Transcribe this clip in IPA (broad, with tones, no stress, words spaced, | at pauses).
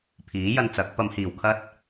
pʰiː˨˥jɐ˧nt͡sɐ˨˥k̚ pɐ˨˧mhiː˨˩wkʰɐ˥t̚